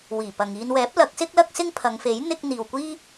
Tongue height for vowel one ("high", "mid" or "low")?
high